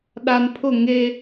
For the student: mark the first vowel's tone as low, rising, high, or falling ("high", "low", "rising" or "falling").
low